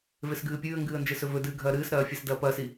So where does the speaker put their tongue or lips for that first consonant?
lips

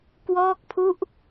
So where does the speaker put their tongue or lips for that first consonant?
velum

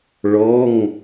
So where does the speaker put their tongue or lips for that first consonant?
retroflex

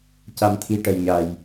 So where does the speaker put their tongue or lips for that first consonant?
palate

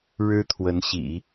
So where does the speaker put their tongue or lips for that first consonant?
retroflex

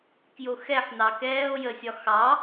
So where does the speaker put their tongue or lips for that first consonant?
velum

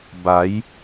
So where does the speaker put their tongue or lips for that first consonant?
lips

